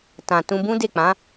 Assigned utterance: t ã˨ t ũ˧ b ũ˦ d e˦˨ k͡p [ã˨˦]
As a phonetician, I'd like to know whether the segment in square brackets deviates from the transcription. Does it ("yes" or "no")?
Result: no